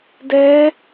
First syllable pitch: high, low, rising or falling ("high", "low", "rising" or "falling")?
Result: rising